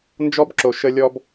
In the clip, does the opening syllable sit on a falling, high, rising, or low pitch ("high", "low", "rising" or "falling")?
high